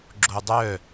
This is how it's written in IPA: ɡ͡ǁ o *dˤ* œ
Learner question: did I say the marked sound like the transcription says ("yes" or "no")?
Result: yes